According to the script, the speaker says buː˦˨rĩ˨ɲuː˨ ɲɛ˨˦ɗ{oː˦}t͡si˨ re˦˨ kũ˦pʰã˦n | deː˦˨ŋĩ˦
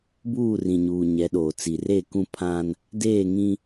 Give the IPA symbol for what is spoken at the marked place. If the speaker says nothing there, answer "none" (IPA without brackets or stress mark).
oː˨